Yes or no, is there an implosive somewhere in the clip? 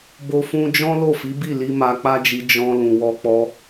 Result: no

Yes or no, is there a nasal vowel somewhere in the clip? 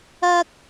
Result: no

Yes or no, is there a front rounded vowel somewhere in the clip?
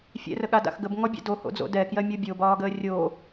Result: no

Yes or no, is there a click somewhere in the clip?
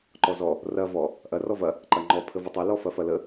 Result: yes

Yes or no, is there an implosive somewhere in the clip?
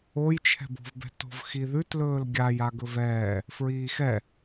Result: no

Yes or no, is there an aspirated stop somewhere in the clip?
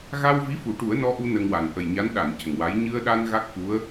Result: no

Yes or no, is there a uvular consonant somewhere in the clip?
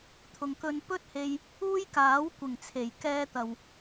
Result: no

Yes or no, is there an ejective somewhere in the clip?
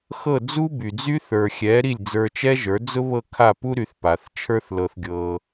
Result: no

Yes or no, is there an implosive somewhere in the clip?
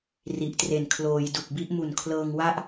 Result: no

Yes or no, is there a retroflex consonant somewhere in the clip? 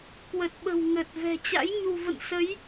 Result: no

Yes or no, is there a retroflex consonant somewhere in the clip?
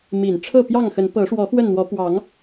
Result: yes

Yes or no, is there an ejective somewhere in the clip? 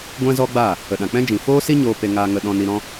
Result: no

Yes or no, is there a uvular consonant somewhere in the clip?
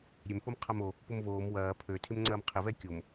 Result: yes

